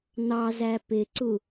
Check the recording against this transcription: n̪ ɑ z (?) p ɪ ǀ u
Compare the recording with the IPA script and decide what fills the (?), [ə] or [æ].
æ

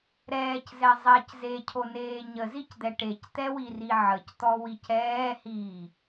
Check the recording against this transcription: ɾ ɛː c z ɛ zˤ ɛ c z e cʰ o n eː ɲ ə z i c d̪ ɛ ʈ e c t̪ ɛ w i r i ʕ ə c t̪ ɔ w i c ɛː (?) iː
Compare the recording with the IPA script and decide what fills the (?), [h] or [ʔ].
h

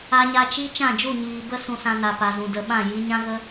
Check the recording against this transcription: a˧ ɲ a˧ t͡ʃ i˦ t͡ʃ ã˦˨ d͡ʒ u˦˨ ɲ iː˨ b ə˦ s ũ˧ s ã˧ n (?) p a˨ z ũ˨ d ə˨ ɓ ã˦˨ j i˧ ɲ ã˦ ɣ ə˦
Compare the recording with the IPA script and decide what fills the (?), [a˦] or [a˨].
a˨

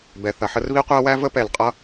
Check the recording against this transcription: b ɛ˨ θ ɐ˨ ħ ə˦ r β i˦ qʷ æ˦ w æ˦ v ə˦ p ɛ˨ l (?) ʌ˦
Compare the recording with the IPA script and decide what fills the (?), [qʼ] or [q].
qʼ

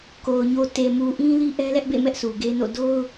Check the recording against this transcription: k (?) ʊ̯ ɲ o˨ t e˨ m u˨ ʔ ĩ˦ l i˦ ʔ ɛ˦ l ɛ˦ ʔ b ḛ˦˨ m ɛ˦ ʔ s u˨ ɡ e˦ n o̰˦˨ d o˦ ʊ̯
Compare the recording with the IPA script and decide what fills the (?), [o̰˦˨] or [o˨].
o˨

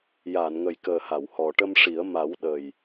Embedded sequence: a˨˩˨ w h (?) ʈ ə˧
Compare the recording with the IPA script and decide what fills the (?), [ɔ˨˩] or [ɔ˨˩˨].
ɔ˨˩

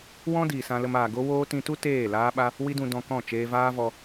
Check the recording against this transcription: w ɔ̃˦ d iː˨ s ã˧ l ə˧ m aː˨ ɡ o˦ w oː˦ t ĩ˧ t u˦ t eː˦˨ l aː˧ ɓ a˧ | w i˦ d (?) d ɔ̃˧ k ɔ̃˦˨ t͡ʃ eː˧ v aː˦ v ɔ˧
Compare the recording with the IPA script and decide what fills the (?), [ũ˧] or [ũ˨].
ũ˧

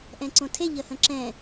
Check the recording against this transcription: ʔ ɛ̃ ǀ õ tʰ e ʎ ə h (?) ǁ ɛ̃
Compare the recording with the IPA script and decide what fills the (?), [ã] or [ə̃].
ə̃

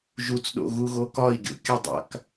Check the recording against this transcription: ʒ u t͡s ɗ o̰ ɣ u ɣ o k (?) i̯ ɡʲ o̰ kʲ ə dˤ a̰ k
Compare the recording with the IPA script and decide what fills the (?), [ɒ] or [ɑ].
ɒ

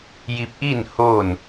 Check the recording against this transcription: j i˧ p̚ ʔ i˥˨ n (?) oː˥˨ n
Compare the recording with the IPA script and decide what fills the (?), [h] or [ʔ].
h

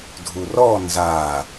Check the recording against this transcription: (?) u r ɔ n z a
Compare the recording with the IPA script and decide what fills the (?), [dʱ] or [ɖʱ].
dʱ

